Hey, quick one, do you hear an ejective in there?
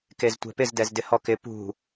no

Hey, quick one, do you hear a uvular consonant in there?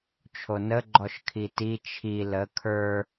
no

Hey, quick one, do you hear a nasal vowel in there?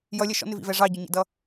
no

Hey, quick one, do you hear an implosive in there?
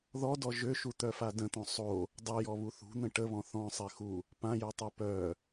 no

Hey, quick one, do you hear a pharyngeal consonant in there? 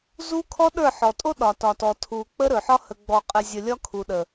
yes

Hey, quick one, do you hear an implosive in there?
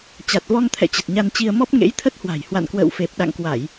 yes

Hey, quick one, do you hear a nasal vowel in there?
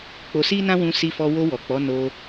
yes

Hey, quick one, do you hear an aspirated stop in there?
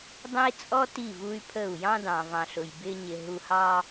yes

